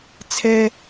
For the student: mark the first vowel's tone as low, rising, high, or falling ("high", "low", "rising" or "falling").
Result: high